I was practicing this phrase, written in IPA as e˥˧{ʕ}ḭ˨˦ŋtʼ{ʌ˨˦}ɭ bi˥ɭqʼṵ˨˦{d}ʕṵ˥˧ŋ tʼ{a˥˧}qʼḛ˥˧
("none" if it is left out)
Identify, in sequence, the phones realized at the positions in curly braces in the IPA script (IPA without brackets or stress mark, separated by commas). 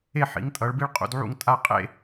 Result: ħ, ʌ˨˦, d, a˥˧